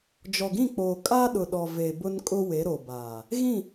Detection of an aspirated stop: absent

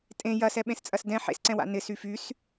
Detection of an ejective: present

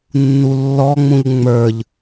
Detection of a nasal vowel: present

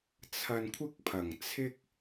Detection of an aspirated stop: present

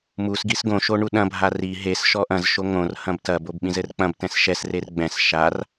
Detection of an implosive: present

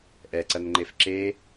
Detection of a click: present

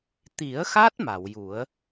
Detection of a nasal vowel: absent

